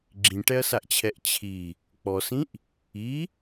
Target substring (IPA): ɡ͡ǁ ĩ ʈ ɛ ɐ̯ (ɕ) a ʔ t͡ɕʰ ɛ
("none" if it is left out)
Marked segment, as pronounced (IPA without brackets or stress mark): s